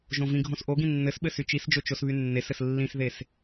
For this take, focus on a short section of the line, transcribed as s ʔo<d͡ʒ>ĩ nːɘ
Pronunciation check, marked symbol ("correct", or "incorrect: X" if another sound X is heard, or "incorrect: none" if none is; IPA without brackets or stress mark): incorrect: ɡ